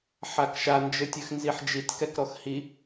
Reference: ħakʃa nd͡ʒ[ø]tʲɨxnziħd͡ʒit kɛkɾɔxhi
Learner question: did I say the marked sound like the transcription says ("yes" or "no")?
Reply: no